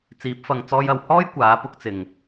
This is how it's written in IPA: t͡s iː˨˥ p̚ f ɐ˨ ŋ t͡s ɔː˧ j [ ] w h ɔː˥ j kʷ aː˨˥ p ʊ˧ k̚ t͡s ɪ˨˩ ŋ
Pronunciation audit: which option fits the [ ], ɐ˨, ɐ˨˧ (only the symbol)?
ɐ˨